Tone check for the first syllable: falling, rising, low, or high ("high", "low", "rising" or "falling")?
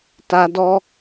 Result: high